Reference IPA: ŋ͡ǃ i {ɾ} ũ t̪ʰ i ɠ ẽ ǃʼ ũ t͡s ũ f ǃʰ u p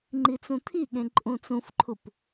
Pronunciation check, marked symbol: incorrect: t͡s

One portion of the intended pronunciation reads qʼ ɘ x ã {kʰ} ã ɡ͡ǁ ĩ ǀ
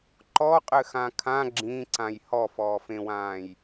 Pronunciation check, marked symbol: correct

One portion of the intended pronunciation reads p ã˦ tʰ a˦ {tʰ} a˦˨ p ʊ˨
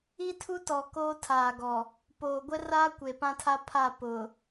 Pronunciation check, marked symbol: incorrect: pʰ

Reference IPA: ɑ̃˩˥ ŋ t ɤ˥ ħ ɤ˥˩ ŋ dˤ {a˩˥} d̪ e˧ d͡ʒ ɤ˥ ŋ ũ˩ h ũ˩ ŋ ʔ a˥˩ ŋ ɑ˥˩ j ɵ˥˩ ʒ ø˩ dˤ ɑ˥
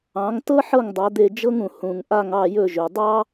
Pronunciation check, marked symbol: correct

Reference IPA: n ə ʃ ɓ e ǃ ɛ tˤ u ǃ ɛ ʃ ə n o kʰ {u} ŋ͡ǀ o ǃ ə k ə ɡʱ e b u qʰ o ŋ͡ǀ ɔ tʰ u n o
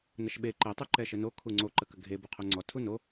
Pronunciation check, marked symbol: correct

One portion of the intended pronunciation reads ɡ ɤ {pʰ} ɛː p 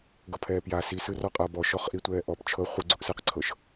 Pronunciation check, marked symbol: correct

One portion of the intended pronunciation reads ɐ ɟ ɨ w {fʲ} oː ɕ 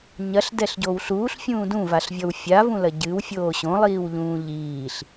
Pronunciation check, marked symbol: correct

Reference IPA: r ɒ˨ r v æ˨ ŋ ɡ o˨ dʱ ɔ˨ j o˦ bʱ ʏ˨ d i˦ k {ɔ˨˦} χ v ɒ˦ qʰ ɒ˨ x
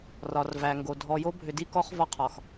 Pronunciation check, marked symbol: incorrect: ɔ˦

